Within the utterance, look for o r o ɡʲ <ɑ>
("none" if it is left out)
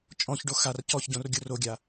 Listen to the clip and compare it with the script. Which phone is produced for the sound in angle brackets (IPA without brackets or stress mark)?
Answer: a